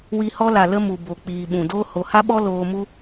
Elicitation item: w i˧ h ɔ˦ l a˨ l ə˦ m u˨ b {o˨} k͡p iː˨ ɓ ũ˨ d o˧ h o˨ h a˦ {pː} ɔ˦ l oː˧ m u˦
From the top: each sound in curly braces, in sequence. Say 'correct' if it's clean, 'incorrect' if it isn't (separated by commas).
correct, incorrect